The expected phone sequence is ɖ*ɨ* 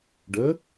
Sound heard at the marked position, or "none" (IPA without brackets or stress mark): ə